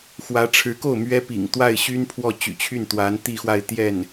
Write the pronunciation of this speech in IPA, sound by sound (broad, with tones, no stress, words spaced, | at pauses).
xwä˧˥ʈ͡ʂʰɻ̩˧˥ko˥˩ʊ̯ mɥɛ˥pḭ˨˩ŋ t̪wa˥˩ɪ̯ɕy˥npʰwɔ˥˩ t͡ɕy̰˨˩t͡ɕʰy˥˩nt̪wa˧˥n t̪i˥˧xwa˥˧ɪ̯t̪jɛ˥˩n